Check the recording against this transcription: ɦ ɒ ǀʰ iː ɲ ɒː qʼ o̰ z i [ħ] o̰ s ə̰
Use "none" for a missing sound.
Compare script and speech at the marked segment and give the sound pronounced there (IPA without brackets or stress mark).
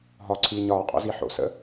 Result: ħ